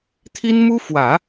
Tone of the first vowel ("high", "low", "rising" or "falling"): high